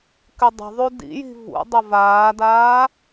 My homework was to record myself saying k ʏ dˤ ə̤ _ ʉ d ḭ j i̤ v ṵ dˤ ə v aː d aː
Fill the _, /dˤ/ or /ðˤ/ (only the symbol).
ðˤ